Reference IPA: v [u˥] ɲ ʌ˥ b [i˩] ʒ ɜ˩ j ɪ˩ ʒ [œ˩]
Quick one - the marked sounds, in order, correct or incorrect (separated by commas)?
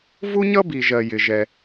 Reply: correct, correct, incorrect